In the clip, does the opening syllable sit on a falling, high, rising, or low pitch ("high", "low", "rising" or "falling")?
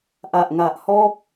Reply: low